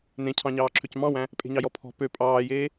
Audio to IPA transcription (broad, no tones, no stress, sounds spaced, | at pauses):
n ẽ cʰ ɑ̃ ɲ ɑː ǁʰ ø c m ɑ̃ w æ̃ | pʼ e̤ ɲ ɑ j ɔ pʰ ɔ̤ p ø pʼ ɑː j eː